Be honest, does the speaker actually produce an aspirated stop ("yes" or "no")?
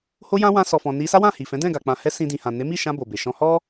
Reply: no